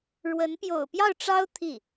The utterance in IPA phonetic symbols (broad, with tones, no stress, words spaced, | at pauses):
ɻwə˧˥n pjo̰˨˩ʊ̯pjɑ˥˩ʊ̯ʈ͡ʂɑ˥ʊ̯ t̪ʰi˥˩